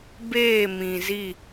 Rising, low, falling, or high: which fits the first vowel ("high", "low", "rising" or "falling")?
falling